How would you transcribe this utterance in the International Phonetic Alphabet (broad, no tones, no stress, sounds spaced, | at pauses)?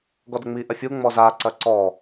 ɡ ɔ d ə ŋ͡m i ʔ ɐ fʲ u ŋ͡m ɔ z a ǀ ɐ ǀ ɔ